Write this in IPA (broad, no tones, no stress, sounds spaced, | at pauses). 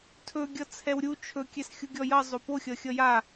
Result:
tʰ ɵ ɡʲ ʌ t͡sʰ ɛ w ɾʲ u t͡ʃʰ ɵ kʲ ɛ s xʲ u ɡʲ ɔ j ʌ zˤ o p o xʲ ʌ xʲ ʌ j a